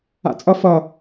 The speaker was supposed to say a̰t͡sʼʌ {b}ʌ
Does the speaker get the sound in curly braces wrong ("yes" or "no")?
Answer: yes